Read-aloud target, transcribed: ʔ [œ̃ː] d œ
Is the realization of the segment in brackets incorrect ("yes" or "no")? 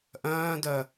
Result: no